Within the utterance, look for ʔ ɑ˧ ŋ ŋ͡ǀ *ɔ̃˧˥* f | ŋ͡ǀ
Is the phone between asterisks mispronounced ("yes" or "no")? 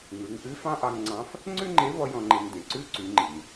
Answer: yes